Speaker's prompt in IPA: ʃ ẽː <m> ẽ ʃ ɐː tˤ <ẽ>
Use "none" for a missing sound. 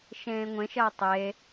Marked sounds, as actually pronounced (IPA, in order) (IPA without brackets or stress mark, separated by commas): ŋʷ, e